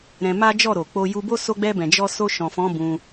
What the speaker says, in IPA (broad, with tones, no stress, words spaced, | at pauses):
ɾɛ̃˧ma˦ d͡ʒɔ˦˨ɾo˨ k͡po˧ju˧bo˦ so˧ɡ͡bɛ˧bɛ̃˨ d͡ʒɔ˧so˧ʃɔ̃˨fɔ̃˨˦ bũ˧